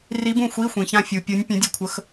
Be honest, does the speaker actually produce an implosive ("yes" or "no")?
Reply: no